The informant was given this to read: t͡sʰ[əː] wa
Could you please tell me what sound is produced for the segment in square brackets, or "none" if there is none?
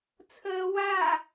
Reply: əː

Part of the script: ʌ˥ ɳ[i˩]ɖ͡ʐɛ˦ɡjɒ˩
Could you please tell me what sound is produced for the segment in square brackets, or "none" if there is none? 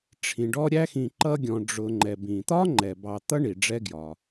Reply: i˩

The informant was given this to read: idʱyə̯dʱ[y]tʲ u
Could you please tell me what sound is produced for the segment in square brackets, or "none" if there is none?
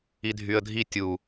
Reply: i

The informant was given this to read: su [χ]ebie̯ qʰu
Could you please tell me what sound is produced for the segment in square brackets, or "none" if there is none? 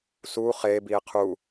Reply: χ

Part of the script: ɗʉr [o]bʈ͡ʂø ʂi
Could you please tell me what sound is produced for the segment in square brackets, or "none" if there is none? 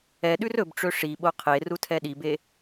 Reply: ɵ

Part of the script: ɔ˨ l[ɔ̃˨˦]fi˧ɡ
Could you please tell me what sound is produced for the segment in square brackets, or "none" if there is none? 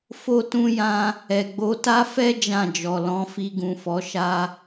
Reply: ɔ̃˨˦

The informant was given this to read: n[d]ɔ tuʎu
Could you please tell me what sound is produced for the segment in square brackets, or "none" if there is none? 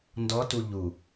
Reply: d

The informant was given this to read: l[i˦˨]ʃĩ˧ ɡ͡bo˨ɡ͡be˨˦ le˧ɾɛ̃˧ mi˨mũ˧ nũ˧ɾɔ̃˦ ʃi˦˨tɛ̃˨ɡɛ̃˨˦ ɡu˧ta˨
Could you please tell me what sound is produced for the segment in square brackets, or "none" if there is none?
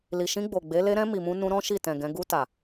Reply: i˨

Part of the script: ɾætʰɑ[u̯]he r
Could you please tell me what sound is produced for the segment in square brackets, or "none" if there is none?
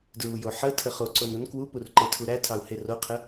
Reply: u̯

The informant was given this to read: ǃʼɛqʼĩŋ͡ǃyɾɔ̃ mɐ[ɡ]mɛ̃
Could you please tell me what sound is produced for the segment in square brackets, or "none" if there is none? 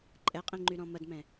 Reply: d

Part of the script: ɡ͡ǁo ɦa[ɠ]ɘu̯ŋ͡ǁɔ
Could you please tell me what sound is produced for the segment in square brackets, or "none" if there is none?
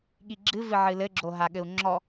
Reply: ɠ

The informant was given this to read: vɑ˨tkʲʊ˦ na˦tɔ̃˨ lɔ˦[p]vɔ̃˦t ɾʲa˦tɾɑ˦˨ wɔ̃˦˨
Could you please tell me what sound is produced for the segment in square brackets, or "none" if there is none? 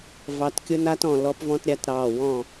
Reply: p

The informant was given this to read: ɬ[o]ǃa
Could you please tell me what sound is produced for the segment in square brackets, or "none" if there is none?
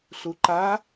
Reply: u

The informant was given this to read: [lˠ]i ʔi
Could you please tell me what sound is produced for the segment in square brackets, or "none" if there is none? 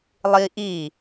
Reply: lˠ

